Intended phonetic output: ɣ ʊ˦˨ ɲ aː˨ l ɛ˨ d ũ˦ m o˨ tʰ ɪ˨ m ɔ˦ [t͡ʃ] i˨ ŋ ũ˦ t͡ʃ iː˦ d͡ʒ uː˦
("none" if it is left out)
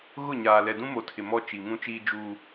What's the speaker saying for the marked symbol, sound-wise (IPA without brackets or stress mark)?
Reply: t͡ʃ